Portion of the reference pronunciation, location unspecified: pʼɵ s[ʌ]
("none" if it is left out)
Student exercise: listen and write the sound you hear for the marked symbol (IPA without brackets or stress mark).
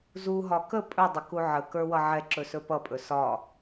ɒ